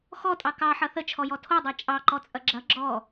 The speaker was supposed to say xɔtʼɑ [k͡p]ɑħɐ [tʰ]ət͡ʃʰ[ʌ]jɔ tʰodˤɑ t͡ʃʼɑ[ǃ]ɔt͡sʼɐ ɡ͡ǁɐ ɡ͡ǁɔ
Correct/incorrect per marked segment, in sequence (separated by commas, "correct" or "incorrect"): incorrect, incorrect, incorrect, correct